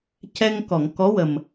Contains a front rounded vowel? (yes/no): no